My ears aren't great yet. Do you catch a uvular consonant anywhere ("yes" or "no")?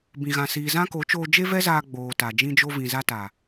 no